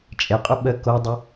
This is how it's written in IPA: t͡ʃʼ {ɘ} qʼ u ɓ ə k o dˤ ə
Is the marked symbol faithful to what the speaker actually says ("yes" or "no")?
no